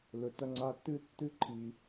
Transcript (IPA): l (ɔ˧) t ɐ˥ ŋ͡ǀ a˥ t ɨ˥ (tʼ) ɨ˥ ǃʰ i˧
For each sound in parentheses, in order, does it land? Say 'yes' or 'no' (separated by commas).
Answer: no, no